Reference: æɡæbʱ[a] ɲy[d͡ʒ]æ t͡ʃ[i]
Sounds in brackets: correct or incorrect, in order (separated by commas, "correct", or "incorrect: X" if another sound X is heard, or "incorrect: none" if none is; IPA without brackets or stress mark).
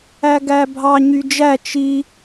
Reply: incorrect: ɑ, correct, correct